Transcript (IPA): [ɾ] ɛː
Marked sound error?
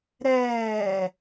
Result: no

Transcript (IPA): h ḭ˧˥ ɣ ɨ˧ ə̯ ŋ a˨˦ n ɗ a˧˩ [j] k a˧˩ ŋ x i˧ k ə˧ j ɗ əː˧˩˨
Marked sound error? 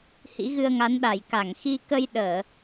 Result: no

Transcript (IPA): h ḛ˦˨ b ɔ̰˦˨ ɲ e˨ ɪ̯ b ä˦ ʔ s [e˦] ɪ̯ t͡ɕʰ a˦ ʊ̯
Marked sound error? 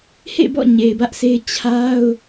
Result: no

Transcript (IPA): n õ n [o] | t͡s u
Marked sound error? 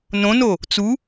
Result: no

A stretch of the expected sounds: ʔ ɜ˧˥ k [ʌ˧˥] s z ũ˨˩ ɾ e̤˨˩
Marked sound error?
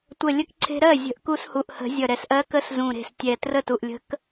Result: yes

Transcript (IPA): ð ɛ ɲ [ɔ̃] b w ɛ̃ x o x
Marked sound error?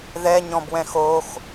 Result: no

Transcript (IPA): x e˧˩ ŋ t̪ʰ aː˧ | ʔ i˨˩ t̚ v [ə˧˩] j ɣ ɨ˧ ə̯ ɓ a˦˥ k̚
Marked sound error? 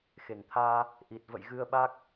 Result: yes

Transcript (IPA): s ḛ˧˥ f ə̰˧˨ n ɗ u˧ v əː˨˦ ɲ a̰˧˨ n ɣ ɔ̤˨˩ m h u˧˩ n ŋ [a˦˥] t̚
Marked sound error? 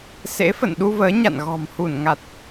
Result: yes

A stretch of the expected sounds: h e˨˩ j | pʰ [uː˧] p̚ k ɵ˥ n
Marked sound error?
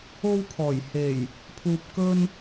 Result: no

